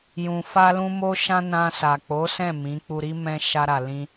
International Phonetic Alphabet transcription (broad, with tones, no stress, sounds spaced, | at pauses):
j ũ˨ f a˧ l ũ˧ m o˧ ʃ ã˧ n ã˧ s a˨ k͡p o˨˦ s ɛ̃˦˨ m ĩ˨˦ k͡p u˧ ɾ i˦ m ɛ̃˧ ʃ a˧ ɾ a˨ l ĩ˧